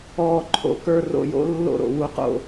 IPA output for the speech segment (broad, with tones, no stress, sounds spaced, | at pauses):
ɔː˨ ǃʰ o̰˨ k ə˞˦˨ r o̰˦˨ j o̰˦ lː o̰˦˨ ɾ o̰˨ w u˧ q o̰˧